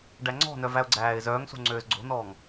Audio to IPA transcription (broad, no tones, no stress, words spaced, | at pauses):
ɖæŋ͡ǀɔ̤nœ væʊ̯ɡ͡ǀæːɪ̯zœːŋso̤ ŋ͡ǀøːzɡ͡ǀo̤nɔːŋ